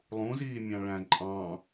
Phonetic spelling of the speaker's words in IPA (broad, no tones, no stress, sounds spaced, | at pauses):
lˠ ũ z iː mʲ ɑ̃ ɭ æ̃ ǃʼ ɑ̃